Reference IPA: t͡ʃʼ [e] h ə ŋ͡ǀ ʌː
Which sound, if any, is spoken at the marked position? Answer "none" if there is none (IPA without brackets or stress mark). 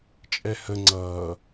ɛ